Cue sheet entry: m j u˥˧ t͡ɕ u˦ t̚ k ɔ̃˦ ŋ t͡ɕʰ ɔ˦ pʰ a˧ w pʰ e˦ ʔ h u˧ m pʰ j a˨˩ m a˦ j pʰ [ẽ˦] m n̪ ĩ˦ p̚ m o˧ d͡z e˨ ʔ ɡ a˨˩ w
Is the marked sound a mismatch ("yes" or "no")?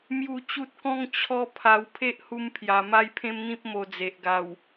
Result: no